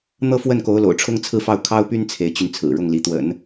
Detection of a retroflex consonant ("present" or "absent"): present